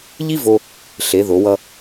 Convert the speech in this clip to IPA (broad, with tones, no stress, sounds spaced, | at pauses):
ʎ i˥ v o˧ | ɬ e˩˧ ð o˩˧ w ʌ˧